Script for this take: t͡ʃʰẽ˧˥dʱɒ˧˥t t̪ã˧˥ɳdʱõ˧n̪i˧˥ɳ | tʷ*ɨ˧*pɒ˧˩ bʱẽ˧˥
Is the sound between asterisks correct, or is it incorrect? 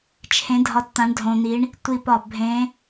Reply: incorrect